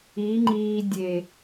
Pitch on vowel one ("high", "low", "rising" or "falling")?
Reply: rising